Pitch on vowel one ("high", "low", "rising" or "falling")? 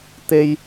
high